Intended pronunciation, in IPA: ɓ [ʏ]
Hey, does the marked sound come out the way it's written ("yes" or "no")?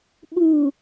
no